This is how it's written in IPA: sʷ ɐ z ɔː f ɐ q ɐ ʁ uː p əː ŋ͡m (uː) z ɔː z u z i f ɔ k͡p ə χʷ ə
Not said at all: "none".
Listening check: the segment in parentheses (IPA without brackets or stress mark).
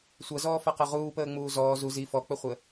uː